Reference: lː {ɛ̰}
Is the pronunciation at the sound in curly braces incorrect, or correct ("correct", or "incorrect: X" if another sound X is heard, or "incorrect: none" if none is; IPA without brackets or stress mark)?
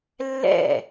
correct